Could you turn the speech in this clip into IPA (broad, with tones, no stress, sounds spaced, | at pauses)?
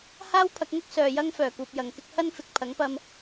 h aː˥ w pʰ ɐ˨˥ k̚ ŋ ʊ˥ k̚ s œː˨ j ɐ˥ ŋ f œː˨˩ k uː˨ p̚ j ɐ˨ ŋ k ɪ˥ k̚ h ɐ˥ n f ɪ˨ k̚ pʰ ɐ˨˥ ŋ p ɐ˧ m